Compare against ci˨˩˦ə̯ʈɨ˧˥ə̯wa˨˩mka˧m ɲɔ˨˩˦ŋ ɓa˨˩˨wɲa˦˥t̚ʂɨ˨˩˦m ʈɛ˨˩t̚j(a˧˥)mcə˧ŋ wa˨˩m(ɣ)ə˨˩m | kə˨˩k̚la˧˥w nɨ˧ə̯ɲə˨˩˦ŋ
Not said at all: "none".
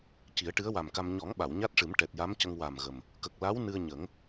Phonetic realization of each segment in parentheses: a˧˥, ɣ

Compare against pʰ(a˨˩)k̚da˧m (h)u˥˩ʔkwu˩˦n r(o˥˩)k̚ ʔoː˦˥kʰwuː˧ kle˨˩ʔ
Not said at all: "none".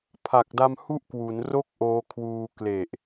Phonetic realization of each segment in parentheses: a˨˩, h, o˥˩

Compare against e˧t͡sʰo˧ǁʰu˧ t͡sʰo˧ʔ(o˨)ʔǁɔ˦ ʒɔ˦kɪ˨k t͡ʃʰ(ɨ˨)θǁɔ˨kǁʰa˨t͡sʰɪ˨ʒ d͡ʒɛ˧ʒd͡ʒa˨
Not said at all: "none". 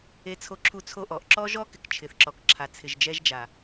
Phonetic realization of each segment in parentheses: ɔ˨, ɪ˨

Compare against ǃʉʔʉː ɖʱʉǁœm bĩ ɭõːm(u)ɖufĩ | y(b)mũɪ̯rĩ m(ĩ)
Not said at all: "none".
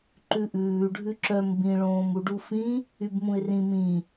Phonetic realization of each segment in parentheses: u, b, ĩ

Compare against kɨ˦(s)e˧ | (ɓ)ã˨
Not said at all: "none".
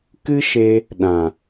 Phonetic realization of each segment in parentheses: ʃ, ɗ

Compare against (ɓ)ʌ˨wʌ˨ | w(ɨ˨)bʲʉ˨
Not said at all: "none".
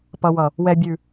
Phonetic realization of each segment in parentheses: p, ɛ˨

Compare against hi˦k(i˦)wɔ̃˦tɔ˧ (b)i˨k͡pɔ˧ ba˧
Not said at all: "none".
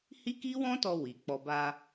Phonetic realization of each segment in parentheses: i˦, w

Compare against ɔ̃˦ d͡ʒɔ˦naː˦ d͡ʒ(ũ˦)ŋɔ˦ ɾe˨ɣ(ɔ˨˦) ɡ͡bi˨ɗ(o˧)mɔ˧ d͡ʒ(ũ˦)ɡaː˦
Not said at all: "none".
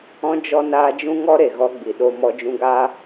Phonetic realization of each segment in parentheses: ũ˦, ɔ˦, o˧, ũ˧

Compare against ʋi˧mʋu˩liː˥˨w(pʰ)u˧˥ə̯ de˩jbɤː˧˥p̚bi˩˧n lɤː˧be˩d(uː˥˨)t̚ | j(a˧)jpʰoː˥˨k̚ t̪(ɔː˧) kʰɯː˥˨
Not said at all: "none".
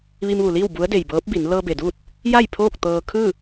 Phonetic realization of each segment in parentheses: b, uː˥˨, a˥˨, ɤː˧

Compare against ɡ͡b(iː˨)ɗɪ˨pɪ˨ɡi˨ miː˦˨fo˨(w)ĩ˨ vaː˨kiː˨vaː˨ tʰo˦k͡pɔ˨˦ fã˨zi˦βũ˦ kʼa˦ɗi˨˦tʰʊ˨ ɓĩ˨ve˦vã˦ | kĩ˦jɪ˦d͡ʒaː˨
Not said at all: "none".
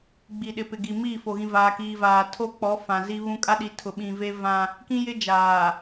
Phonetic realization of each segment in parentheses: i˨, ɣ

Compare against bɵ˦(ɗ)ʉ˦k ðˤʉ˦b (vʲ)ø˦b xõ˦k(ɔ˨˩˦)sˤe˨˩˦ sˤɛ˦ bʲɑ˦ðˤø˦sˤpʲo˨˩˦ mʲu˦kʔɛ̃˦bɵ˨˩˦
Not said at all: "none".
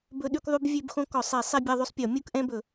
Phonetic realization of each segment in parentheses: ɗ, vʲ, ɔ˨˩˦

